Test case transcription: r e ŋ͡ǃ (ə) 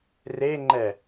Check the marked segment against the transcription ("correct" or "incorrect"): incorrect